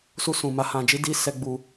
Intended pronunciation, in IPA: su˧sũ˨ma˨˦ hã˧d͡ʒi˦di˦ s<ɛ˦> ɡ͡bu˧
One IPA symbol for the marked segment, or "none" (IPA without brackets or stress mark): ɛ˦